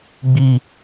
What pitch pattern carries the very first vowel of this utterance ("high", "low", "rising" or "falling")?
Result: falling